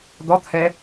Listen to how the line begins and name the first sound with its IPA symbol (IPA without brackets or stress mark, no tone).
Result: d̪